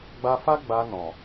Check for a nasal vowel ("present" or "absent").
present